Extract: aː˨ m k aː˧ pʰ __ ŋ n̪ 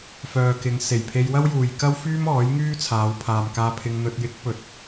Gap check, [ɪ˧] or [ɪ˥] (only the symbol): ɪ˧